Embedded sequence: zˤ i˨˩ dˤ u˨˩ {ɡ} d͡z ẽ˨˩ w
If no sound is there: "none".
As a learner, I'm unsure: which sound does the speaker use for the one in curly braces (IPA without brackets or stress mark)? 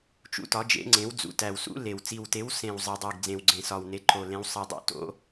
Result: ɡ